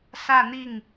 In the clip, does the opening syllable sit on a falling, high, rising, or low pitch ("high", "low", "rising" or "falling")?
falling